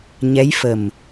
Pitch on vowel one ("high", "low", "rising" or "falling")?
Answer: rising